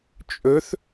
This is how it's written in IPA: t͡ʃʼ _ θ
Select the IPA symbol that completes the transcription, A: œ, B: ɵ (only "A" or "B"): B